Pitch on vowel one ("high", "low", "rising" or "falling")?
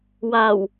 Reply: low